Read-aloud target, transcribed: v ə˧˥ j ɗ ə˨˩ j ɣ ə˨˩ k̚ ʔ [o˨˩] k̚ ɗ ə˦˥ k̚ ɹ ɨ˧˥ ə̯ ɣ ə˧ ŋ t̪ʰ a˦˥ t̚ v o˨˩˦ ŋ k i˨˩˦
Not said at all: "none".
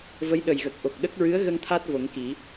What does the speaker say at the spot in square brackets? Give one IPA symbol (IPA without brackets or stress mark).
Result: o˨˩